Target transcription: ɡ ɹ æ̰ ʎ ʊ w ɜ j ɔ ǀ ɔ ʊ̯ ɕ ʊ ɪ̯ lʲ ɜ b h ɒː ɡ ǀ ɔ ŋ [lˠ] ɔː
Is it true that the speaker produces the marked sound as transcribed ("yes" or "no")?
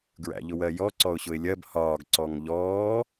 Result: no